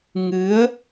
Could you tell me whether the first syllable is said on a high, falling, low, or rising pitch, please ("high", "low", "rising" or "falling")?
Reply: rising